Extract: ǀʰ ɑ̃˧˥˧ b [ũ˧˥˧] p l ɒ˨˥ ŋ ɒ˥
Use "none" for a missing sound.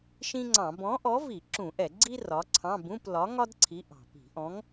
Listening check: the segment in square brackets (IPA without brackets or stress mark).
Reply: ũ˧˥˧